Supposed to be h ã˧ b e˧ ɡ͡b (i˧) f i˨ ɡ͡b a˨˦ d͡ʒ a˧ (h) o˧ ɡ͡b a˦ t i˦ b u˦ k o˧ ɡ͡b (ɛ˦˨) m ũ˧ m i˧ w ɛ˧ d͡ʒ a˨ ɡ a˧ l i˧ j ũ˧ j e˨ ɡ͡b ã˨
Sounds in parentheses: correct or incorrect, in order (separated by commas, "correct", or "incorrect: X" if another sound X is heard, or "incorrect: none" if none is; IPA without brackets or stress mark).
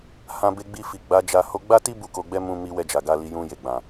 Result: correct, correct, incorrect: ɛ˦